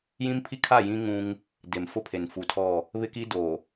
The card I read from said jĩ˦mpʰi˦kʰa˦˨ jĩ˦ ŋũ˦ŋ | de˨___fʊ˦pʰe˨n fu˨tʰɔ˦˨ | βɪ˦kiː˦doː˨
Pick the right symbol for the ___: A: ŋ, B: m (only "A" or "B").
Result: B